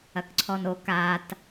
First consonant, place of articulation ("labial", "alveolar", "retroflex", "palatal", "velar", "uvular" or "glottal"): velar